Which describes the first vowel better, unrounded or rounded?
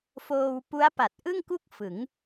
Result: rounded